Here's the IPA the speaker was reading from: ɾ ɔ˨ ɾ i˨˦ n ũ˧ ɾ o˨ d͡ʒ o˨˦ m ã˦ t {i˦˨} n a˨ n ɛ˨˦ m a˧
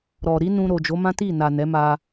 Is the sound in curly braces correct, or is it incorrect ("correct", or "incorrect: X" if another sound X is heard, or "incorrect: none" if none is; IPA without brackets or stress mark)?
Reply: correct